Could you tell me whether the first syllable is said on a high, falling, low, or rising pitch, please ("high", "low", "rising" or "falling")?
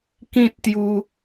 high